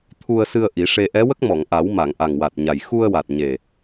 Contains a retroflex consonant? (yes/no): yes